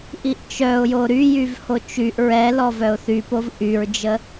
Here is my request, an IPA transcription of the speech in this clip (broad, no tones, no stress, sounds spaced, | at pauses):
ʔ i ʔ t͡ʃ œ ʊ̯ j o ɾ y j y v h o t͡ʃ y ʔ ɹ ɛ l ɔ v œ ʊ̯ θ y p o v ʔ y ɹ d͡ʒ ə